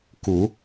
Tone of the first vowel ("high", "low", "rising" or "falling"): low